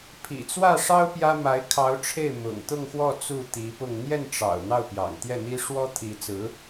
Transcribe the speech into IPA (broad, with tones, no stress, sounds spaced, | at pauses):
pʰ ḭ˨˩ t͡s w ä˥˩ ʂ ɑ˥ ʊ̯ p j ä˥ m a˧˥ ɪ̯ kʰ ɑ˧˥ ʊ̯ ʈ͡ʂʰ e˥˩ ɪ̯ m ʊ̰˨˩ ŋ t̪ ʊ˥˧ ŋ x w ɔ˥˧ t͡s u˥˩ t̪ i˧˥ p ʊ˥˧ ŋ n̪ j ɛ˥˩ n ʈ͡ʂ ɑ̰˨˩ ʊ̯ n̪ ɑ˥˩ ʊ̯ p j ɑ̰˨˩ ŋ t̪ j ɛ˥˩ n̪ i˥ ʂ w ɔ˥ t̪ʰ i˧˥ t͡s ɹ̩˧˥